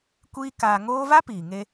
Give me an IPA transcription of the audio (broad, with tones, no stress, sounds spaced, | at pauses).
kʷ iː˦ k aː˧ ŋ oː˦ v a˦ p iː˨ ŋ e˧